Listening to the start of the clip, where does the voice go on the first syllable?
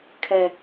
low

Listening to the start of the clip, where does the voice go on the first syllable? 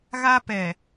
high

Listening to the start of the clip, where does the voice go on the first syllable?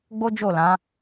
high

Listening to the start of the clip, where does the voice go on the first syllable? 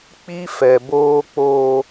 high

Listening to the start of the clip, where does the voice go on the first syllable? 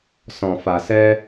low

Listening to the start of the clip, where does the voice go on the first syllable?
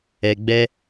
low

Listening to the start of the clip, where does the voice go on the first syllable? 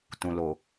low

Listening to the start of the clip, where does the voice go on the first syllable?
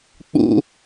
high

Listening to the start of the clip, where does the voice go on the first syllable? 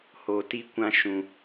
low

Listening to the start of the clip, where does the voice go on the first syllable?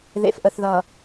low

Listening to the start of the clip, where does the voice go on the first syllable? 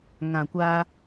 low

